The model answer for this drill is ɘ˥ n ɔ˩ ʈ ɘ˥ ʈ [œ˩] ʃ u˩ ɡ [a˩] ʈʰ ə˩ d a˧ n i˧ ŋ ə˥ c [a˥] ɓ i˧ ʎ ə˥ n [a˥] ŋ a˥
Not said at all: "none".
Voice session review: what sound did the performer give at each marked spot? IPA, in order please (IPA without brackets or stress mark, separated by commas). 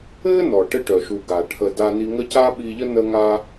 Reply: œ˩, a˩, a˥, ə˥